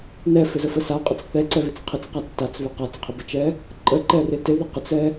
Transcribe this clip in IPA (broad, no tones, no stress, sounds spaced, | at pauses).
n ɛ f ɪ z ə f ə s a qʼ ə t͡s θ ɛ ǀ ɛ β ɪ t͡s qʰ ɪ t͡s q a t͡s t a t͡s β ɪ q a t͡s qʰ ɪ b ə t͡ʃ ɛ | ǃʼ ə ǃ ɛ r ɪ t ɪ ð ə q ə t͡s ɛ